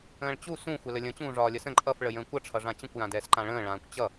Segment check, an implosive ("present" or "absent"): absent